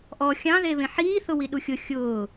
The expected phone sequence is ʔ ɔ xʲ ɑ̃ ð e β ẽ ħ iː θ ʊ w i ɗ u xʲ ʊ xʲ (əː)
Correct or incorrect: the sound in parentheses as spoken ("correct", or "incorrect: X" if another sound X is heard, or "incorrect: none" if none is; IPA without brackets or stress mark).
incorrect: ʊː